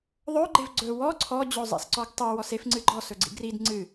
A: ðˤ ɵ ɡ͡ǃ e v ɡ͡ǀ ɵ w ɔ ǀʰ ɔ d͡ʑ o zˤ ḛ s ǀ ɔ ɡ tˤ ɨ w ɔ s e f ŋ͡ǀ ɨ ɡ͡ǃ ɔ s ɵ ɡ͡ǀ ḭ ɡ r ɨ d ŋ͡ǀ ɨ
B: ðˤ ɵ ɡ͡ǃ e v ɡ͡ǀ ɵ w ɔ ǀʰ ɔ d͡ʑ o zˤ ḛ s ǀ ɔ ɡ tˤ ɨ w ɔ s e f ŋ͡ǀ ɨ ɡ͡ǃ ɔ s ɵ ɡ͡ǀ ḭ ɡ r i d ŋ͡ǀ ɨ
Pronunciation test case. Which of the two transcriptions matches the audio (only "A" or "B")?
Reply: B